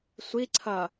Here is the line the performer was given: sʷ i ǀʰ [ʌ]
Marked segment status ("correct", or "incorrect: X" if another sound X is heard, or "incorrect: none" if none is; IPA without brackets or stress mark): correct